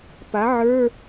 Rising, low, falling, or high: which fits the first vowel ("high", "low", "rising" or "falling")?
rising